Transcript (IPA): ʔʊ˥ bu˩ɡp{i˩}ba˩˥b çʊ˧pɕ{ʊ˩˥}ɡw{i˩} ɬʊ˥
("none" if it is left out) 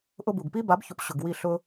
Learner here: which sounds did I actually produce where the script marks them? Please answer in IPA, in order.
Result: i˥, ʊ˩, i˥˩

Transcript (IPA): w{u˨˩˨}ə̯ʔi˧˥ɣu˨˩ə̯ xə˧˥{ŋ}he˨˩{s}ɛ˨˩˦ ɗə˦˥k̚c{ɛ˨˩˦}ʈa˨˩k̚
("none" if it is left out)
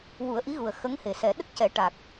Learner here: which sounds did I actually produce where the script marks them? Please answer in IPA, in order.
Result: u˨˩˦, ŋ, s, ɛ˨˩˦

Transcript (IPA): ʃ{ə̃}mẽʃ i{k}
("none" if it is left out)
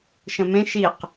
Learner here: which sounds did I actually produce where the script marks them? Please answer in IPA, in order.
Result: ə̃, q

